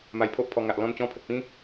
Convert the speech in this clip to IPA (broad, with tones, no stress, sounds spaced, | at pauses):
m a˧ j pʰ o˦ ʔ pʰ ɔ˧ ŋ a˨ ʔ l ɔ̃˧ n t͡ɕ ɔ̃˧ pʰ ə˨ t̚ p ĩ˦